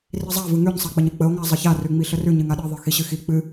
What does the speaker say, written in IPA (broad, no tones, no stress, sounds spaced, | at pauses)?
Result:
r i zˤ a v ɨ ŋ ʉ ɲ sˤ a k͡p ə ɲ ɨ k͡p ə o̯ ŋ a zˤ ɨ ç a r ʉ ŋ͡m i ɬ ə r ʉ ɲ ɨ ŋ a ɗ i ðˤ ɨ x i ɕ ɨ x i k͡p ɨ